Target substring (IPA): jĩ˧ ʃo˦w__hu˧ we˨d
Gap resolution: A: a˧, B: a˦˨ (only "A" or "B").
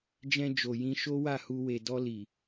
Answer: B